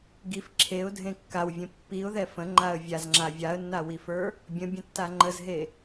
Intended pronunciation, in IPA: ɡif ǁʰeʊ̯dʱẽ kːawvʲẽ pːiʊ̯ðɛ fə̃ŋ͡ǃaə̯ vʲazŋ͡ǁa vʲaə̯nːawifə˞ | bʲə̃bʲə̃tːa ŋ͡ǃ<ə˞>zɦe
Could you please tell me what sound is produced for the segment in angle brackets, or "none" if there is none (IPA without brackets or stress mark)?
ə